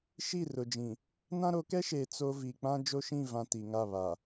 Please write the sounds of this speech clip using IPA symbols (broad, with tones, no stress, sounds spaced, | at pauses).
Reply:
ʃ i˦˨ r ʊ˨ d͡ʒ ĩ˨ | n ã˦ ɾ o˨˦ k ɛ˦ ʃ eː˨ t͡s o˦ v i˨ k͡p ã˦ d͡ʒ o˦ ʃ ĩ˦˨ v ã˨ t i˨ ŋ a˦˨ β a˨